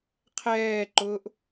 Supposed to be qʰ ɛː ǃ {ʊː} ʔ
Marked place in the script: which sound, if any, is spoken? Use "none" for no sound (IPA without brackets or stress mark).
ʊː